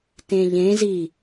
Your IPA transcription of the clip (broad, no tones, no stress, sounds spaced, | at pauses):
t ẽ ʎ ẽ z i